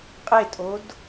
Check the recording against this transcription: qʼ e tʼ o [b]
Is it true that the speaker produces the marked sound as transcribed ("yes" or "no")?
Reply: no